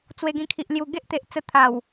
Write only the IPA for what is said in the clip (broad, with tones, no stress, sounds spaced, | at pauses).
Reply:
t͡s w e˧ ɡ ĩ˧ kʰ i˨ ʔ l j u˨˩ ɡ e˦ ʔ t̪ e˨ ʔ t͡s ə˧ t̪ʰ a˨˩ w